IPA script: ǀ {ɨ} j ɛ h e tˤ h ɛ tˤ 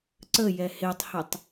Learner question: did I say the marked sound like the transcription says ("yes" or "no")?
no